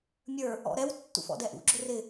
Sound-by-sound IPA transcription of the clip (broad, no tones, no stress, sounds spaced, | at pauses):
mʲ ə˞ | ɔ̰ ɾ ɛ w tː ṵ f ɔ̰ d ɛ ʔ ṵ ɡ͡ǁ ʊ r ɪ